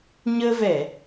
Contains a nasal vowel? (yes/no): no